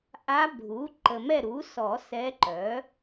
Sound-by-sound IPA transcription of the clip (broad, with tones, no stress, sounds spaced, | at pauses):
ʔ a˧˥ bʱ u˩˥ ǃ ə˨ m ɛ˦˨ ɾ u˩˥ s ɔ˨˩˦ s ɛ˧˥ ǃ œ˩˥